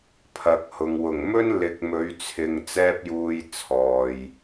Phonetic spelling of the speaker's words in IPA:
pʰ ɐ˨˥ k̚ h ʊ˨ ŋ w ʊ˨˩ ŋ m ɵ˥ n l ɪ˨˥ k̚ m ɵ˨˧ ɥ t͡sʰ ɪ˨ ŋ t͡s ɛː˥ p̚ j uː˧ j t͡sʰ ɔː˨ j

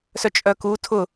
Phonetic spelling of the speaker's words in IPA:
s œ t͡ʃʼ œ k u tʰ ʊ

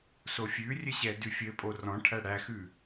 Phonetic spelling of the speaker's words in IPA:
s o fʲ ʉ rʲ ɘ ɕ ɛ d ʉ fʲ ɘ pʼ o r ɔ̃ ʈʰ æ ɽ æ x ʉ

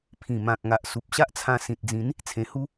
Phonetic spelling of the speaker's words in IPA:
pʰ ĩ˨˩ m ã˨ k̚ ŋ a˨ ʔ s u˨ p̚ ɕ a˦ ʔ t͡sʰ ã˧ s ĩ˨ t̚ d͡z ĩ˨˦ n | t͡sʰ ẽ˧ h u˦

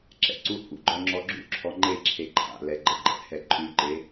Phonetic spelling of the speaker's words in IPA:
ǁ ɛ̰ ǀ u h ṵ ɡ͡ǃ ɔ ŋ͡ǁ ɔ ɡ͡ǁ ṵ ǁʰ ɔ ŋ͡ǃ e ǁʰ e ǃʰ a̰ l ɛ ɡ͡ǃ ə ɡ͡ǃ ɛ̰ h ɛ ǃʼ ʉ ǃ e

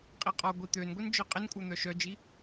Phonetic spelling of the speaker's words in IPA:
qʼ i qʼ ɔ ɡʷ i t̪ ø n ɡʷ e n d͡ʒ œ qʼ ɪ n kʷʼ œ n̪ œ ʃ œ d͡ʒ i

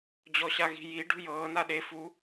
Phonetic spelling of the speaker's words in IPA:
d͡ʑ ɔ ɕ a ɣ i̤ j i ɖ ṳ j ɤː n a ɗ e f u

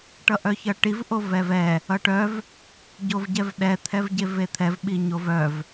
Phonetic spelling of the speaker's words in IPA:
ʈ ʌ ʔ œ ç ʌ ʈ i v ʔ o v ɛ v ɛ | ʌ ʈ œ v | ɟ o v ɟ ɛ v ɗ ɛ t̪ʰ ɛ v ɟ e v e t̪ʰ ɛ v ɓ i ɲ o v œ v

